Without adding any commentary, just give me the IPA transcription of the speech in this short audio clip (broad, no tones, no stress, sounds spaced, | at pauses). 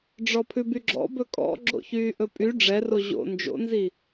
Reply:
ɖ͡ʐ ɔ pʰ ʉ b y ɡ͡ǁ ɔ̰ b ɵ kʼ ɔ̰ ɡ͡ǁ o̰ ç yː ʔ ɵ pʼ y ɖ͡ʐ ɛ r o ʑ o̰ n d͡ʒ o̰ n z i